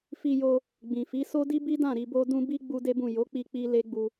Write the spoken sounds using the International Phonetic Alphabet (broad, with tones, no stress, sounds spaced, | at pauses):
f i˧ j o˧ | ɡ͡b ĩ˨ f i˨˦ s o˦ d i˦ b i˦ d ã˦˨ ɾ i˧ b o˦ d ũ˦ b i˦ ɡ͡b u˦ d e˦ b ũ˦˨ j o˨˦ k͡p i˧ k͡p i˧ l e˦ ɡ͡b u˧